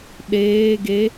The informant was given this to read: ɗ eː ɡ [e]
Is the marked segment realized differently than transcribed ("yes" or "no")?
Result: no